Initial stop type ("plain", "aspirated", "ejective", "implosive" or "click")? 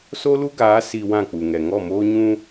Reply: plain